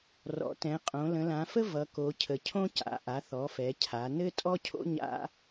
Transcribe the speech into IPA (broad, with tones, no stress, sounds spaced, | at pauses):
r ɔ̰˩˧ t ɛ̃˩˧ qʼ õ˩˧ l ə̃˩˧ l ã˩˧ f ə˥ v ʌ˩˧ k o˩˧ cʰ ə˩˧ cʰ õ˥ c a̰˩˧ ʔ a˩˧ θ ɔ˩˧ f ɛ˩˧ cʰ a˩˧ n ɘ˥ tʼ ɔ˥ cʰ o̰˥ ɲ a̰˥